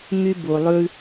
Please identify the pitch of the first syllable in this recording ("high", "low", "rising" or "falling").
high